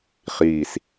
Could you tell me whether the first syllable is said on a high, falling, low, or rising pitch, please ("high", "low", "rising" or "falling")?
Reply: falling